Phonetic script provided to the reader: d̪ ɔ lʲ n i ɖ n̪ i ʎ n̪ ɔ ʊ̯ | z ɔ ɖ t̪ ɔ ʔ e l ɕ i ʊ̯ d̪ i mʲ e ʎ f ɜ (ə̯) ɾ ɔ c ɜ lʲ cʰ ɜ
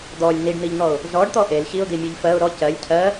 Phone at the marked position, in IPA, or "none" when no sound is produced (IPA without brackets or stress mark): ʊ̯